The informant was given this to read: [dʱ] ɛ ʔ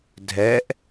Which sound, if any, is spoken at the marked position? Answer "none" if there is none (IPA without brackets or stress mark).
dʱ